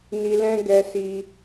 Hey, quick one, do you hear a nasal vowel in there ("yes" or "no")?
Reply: yes